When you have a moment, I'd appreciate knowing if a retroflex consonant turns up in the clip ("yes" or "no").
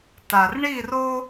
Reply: yes